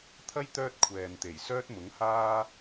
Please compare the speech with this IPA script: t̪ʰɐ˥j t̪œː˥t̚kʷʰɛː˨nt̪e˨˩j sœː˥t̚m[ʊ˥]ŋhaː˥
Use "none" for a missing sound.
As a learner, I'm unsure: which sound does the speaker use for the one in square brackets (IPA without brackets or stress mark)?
ʊ˨˥